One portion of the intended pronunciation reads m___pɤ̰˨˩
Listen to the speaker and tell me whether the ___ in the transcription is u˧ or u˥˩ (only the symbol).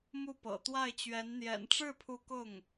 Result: u˥˩